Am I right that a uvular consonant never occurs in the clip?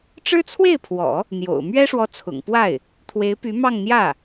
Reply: yes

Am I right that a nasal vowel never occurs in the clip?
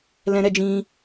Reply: no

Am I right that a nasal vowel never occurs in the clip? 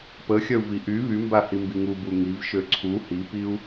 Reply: yes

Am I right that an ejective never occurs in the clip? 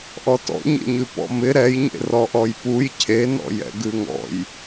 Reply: yes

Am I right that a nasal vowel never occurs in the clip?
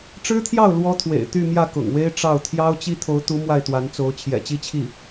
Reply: yes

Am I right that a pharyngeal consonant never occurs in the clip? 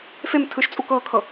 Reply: yes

